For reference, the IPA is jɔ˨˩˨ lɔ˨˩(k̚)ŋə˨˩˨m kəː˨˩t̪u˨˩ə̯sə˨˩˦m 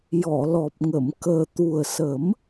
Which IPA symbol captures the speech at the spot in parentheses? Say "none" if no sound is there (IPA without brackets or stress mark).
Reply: p̚